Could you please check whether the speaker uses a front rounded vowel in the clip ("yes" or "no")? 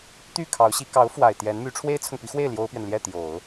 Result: yes